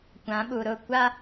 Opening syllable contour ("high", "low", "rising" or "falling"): rising